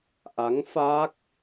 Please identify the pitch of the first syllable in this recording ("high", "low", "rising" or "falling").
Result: rising